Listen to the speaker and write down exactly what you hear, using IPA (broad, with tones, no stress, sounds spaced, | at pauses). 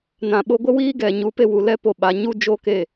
n ã˨ ɓ o˧ ɡʷ ə˦ w iː˦ ɡ ɛ˨ ɲ u˨˦ p e˧ w u˨ l ɛ˧ p o˨ ɓ a˨ ɲ u˦ d͡ʒ o˦ k e˦˨